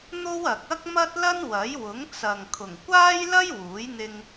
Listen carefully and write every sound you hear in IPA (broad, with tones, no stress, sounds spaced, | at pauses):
n̪ o˥ w ɐ˨ k̚ ɐ˥ k̚ m ɐ˥ t̚ l ɐ˥ n w ɐ˨˥ j w ʊ˨˥ ŋ t͡s ɐ˨ ŋ kʰ ʊ˨˩ ŋ kʷ aː˥ j l ɐ˥ j w uː˨˥ j n̪ ɪ˧ ŋ